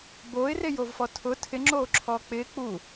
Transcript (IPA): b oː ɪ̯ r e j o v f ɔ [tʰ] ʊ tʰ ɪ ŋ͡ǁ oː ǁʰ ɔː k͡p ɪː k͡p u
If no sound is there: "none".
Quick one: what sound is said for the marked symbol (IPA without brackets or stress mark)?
tʰ